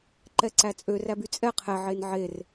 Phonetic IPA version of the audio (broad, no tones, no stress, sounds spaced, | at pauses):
ǃ ɛ ǀ æ t͡sʼ ø r æ b y t͡sʼ ɛ qʰ ɛ ʕ e n ʕ e r